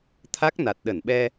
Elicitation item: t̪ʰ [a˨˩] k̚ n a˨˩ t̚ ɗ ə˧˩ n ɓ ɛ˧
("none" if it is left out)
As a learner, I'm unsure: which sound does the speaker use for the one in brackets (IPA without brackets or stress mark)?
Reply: a˦˥